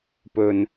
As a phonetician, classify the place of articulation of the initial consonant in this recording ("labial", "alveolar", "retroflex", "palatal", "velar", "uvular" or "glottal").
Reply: labial